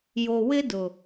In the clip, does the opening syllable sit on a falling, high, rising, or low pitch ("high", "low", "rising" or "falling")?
low